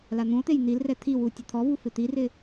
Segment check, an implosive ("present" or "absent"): absent